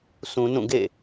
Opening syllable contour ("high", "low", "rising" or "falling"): low